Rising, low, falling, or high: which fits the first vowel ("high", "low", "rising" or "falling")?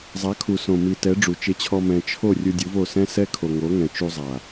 rising